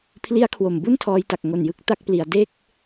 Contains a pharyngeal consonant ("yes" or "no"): no